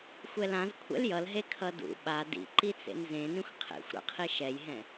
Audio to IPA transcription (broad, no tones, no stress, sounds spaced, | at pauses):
xʷ ɛ l ã z kʷʰ ɛ̰ l j ʌ l ɦ e kʰ ʌ d ṵ ɓ a d ḭ ǃ i t͡s ḛ n z ẽ n ĩ xʷ qʰ ḛ xʷ ɾ a̰ qʰ i ʃ ɛ j ɦ ɛ̃